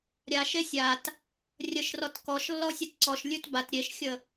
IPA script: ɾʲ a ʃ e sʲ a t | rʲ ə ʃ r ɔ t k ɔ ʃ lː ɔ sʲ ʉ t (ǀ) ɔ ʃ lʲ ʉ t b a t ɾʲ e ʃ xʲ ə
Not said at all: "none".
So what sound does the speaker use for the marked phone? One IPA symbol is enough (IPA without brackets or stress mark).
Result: ǀ